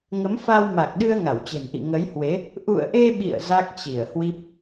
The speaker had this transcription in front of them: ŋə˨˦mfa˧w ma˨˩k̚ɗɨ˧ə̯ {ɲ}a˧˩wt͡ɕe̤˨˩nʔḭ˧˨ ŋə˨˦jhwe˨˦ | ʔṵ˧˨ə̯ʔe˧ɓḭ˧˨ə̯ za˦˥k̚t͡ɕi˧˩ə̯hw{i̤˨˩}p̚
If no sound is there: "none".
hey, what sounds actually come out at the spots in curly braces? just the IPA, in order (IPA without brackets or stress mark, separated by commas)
ŋ, i˦˥